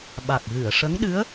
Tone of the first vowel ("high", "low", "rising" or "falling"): low